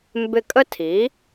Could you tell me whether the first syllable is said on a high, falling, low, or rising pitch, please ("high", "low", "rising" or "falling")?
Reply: falling